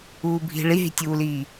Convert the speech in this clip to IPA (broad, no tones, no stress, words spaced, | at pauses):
uːbʱi̤ ɭiɦi̤tʲuːliː